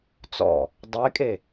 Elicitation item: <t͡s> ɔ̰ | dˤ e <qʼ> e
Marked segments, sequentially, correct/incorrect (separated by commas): correct, incorrect